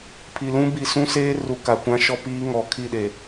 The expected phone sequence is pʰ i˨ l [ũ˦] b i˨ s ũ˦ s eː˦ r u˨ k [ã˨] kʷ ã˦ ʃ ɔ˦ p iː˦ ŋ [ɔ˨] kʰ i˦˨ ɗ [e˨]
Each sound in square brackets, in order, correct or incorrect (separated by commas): correct, incorrect, correct, correct